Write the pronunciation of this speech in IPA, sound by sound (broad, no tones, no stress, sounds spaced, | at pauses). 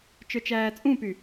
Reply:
t͡ʃ ə˞ t͡ʃ æː t͡sʼ ũ p y